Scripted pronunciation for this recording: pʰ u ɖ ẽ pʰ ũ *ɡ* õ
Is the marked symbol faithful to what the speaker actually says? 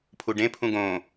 yes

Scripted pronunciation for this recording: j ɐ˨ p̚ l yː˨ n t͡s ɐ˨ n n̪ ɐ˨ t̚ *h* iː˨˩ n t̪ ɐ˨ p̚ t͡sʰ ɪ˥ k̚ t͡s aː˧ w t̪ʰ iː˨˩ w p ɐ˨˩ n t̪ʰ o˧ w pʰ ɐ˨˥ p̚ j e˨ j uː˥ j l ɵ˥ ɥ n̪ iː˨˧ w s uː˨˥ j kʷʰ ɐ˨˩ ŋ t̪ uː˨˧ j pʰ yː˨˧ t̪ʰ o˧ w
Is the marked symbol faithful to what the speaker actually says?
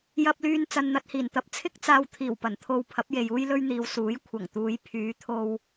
yes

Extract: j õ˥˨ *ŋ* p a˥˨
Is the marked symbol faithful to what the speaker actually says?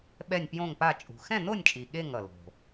yes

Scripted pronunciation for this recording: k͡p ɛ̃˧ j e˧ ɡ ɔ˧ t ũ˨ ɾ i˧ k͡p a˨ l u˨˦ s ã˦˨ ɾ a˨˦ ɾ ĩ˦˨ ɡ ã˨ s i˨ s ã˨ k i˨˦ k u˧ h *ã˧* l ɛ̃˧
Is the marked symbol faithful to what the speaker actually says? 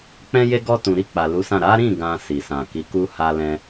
no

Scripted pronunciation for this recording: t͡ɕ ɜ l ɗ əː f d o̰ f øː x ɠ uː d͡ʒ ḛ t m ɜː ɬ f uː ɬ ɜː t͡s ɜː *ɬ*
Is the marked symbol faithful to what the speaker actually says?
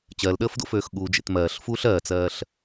yes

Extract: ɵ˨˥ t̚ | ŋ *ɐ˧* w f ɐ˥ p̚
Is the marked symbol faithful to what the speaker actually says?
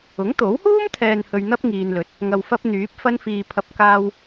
yes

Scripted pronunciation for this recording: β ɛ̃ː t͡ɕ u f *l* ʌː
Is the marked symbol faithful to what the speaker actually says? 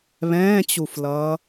yes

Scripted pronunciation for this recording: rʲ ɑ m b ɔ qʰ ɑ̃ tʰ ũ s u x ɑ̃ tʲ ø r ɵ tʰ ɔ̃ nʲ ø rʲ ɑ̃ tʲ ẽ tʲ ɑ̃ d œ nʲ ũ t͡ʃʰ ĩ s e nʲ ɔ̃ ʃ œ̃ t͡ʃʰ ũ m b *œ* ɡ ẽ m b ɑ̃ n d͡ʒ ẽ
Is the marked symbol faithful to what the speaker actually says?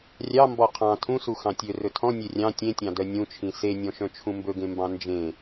no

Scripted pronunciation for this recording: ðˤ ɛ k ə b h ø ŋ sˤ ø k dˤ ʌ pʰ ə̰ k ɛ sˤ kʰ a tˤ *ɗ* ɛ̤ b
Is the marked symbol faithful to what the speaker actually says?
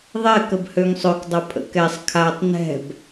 no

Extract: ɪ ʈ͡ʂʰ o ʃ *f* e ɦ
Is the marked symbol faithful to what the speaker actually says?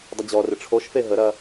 yes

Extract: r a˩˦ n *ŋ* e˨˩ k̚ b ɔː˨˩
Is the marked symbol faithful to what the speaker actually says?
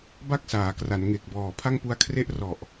yes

